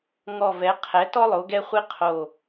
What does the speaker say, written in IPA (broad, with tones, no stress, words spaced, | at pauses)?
ŋɔ˧˩vɛ˩˥ qʰɛ˩˥tɔ˥ lˠo˩˥ɡɛ˥χʷi˥ qʰo˧˩